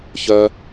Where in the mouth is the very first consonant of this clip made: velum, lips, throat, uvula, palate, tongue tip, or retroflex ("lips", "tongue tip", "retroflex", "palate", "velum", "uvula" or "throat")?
palate